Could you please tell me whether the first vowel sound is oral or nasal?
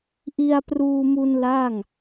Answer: oral